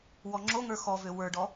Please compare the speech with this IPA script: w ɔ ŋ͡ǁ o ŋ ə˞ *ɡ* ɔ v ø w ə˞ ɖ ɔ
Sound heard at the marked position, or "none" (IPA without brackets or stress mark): x